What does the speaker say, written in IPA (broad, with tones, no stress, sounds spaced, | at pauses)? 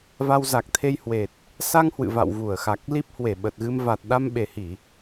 v a˧ w z a˨˩ k̚ t̪ʰ e˧ j h w e˨˩ t̚ | s a˧ ŋ h w ɨ̰˧˨ v a̰˧˨ w v u˧˩ ə̯ x a˨˩ k̚ l i˦˥ p̚ h w e˧˩ ɓ ə˨˩ t̚ ɣ ɨ˧ m v a˨˩ t̚ ɗ a˧ m ɓ e˨˩ h i˧˩˨